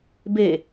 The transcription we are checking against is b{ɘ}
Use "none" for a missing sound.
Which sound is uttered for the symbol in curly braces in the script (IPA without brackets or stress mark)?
e